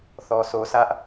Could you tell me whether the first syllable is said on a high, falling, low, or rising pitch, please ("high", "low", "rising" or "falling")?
low